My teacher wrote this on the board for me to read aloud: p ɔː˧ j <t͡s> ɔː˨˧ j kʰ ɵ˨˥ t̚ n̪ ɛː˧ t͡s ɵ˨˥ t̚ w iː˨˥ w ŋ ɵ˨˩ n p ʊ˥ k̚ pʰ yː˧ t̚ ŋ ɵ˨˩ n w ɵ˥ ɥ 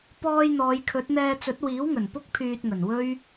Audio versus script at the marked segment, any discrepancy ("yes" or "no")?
yes